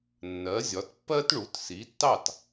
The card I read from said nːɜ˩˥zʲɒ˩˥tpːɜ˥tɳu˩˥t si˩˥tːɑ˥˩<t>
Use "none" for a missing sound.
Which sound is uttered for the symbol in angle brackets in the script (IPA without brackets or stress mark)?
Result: t